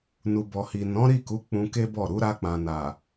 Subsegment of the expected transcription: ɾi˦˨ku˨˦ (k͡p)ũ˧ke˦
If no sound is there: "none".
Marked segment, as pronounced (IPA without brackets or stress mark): k͡p